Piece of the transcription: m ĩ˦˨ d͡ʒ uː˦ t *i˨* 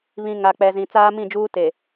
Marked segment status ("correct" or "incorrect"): incorrect